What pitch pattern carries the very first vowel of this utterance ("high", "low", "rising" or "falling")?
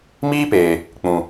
high